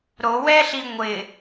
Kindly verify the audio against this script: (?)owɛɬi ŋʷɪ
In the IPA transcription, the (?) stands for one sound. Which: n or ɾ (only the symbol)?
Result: ɾ